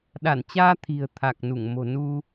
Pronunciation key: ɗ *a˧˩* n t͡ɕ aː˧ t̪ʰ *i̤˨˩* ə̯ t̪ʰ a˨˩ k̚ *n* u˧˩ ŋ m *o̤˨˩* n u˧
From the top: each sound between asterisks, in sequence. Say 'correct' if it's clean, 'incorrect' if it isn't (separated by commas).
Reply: correct, correct, correct, correct